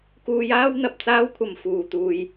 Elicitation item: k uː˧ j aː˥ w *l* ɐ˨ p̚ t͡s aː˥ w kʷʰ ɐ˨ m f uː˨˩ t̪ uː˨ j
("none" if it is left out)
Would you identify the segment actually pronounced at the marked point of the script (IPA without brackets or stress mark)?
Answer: n̪